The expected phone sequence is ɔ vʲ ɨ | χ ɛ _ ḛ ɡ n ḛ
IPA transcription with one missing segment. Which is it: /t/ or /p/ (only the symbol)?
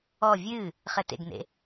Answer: t